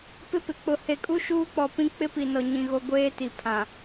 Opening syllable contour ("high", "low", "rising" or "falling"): high